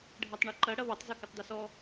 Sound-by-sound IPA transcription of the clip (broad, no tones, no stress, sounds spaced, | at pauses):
ɖʱ ɜ tˤ ɳ ɐ ǃ ɐ ɽ ɐ β ɐ tˤ z ɔ k ə tˤ d a s ɔ